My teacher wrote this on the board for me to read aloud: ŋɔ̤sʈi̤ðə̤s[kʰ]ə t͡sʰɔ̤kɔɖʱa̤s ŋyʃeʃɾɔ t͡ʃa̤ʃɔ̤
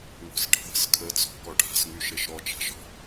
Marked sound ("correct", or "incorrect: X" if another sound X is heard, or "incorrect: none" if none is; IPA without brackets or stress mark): correct